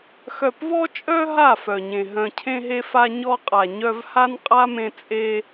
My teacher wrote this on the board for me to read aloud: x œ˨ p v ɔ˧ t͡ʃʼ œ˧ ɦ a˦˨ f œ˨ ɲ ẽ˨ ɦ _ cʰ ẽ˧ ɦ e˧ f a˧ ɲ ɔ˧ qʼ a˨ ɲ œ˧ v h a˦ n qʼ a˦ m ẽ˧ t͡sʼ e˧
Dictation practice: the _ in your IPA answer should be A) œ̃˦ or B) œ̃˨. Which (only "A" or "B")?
B